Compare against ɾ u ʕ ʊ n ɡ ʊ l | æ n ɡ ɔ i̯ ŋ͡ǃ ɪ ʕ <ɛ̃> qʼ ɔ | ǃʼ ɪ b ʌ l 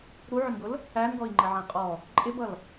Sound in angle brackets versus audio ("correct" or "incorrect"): correct